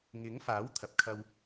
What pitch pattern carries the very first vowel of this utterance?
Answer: rising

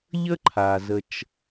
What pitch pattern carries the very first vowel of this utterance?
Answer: high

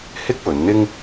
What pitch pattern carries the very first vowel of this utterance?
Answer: high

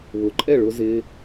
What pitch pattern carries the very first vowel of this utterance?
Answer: low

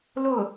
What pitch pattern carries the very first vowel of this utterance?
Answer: falling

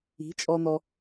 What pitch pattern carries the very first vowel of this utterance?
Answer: rising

